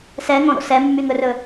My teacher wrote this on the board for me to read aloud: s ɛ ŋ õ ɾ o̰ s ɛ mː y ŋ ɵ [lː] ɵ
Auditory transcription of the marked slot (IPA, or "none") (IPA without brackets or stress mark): r